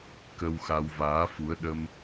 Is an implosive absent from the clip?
no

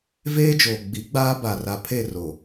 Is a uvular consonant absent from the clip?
yes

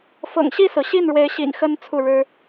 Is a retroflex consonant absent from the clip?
no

